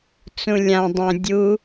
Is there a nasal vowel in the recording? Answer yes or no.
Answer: yes